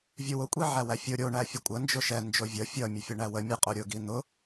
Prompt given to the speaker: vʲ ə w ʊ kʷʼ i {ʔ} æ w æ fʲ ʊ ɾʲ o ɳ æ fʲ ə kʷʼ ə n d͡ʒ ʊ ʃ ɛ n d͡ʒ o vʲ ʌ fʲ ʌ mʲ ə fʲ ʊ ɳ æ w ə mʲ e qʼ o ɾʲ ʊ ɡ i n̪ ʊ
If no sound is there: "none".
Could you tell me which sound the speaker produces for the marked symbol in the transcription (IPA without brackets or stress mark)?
ʕ